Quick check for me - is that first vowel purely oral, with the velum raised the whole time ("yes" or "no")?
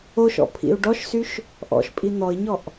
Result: yes